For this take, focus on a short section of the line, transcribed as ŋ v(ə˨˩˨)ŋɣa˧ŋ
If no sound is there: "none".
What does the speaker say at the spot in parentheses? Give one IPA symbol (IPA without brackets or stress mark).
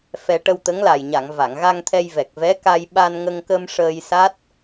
a˨˩˨